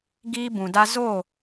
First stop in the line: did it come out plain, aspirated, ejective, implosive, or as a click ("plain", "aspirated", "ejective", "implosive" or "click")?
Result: plain